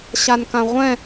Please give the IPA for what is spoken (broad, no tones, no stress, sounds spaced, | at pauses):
ɕ a n k ã ʁʷ ɛ̃